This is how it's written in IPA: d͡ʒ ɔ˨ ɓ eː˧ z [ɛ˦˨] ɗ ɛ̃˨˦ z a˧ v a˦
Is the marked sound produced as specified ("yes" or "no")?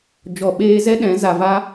no